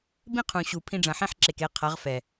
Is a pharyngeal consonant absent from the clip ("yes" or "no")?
no